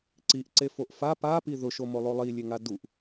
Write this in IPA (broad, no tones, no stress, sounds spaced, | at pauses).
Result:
ǀ i ʔ ǀ e f o ʔ f a p a p i ð ʊ ʃ o m o lˠ o lˠ i lʲ e ŋ a d u ʔ